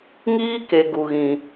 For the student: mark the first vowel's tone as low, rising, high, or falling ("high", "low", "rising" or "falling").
high